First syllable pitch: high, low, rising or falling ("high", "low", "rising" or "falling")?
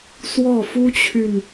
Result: falling